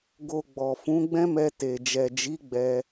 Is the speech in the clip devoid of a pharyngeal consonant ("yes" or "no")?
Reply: yes